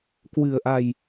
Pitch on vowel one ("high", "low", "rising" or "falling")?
low